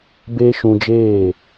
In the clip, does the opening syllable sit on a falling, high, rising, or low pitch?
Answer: high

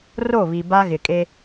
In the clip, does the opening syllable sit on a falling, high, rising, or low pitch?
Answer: falling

